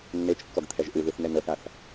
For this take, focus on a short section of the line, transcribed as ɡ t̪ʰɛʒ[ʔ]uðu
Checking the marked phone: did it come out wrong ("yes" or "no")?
no